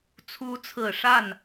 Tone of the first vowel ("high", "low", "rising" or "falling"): rising